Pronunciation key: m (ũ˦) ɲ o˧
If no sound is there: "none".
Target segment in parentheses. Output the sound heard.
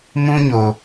ũ˦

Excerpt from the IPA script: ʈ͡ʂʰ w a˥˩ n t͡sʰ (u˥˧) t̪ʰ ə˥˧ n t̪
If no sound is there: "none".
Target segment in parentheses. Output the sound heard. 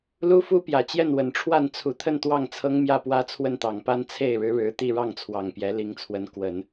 u˧˥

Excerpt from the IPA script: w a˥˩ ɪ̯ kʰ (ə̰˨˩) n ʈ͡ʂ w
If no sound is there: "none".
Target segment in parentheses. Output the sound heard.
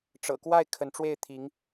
ə˧˥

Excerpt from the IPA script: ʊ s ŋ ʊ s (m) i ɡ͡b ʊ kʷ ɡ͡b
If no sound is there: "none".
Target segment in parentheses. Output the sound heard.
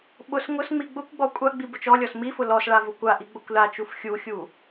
ŋ͡m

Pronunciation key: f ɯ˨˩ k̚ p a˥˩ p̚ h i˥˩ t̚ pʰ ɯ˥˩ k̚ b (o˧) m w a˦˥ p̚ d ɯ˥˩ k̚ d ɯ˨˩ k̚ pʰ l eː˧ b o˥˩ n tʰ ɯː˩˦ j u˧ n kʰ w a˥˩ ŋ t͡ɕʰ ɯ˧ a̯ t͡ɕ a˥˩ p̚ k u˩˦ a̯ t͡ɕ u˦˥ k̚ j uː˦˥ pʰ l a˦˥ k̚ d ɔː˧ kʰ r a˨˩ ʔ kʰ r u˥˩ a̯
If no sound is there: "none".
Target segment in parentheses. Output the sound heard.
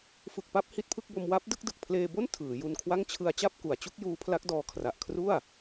o˧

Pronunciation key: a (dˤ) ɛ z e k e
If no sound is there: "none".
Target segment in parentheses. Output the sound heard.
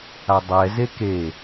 dˤ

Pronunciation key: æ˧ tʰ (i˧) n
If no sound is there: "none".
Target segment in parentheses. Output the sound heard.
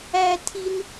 i˧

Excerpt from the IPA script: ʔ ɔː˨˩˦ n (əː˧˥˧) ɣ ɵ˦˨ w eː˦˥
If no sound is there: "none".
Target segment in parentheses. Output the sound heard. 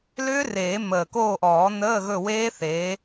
əː˧˥˧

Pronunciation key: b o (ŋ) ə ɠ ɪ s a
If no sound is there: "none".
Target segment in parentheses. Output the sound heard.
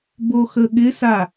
x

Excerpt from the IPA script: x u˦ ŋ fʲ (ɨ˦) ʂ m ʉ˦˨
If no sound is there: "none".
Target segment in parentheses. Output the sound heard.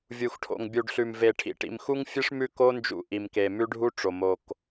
ɨ˦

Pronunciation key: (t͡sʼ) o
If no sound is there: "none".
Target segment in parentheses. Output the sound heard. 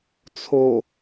t͡sʰ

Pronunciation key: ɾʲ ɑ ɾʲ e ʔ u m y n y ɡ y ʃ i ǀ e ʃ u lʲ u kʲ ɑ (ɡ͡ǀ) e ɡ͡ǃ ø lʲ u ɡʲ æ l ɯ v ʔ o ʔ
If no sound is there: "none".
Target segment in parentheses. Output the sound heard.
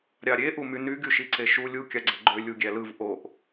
ɡ͡ǀ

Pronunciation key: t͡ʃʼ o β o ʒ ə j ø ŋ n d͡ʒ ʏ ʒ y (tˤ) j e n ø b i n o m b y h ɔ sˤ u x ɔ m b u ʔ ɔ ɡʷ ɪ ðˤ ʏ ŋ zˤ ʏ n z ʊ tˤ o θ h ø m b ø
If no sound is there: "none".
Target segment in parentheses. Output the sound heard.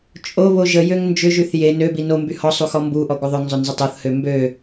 θ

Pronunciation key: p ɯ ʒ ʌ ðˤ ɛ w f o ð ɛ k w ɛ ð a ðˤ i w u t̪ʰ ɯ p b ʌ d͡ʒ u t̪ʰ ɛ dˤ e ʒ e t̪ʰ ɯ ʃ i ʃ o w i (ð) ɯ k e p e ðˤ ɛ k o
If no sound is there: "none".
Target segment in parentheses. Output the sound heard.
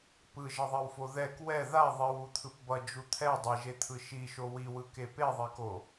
w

